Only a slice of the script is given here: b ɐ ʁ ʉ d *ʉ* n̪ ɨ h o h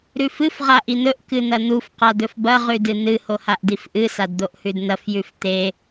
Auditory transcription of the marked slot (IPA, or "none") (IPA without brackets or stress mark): ɨ